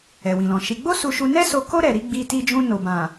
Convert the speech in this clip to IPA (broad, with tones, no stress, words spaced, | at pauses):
ɛ˨wĩ˨lɔ̃˨ ʃi˧ ɡ͡bo˦su˧ʃu˧nɛ˦ so˧ko˦ ɾɛ˧ ɾi˧ɡ͡bi˧ti˧d͡ʒũ˧ no˨ bã˨